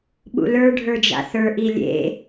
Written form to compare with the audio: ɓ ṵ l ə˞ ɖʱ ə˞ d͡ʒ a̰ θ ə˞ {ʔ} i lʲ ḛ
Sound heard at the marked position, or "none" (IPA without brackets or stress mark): ʔ